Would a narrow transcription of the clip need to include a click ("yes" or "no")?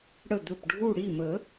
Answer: no